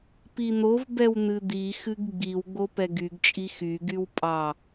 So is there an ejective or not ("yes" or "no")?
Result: yes